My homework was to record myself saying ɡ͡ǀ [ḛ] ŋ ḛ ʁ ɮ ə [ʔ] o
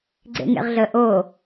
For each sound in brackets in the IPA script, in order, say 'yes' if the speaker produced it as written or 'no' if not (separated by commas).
yes, yes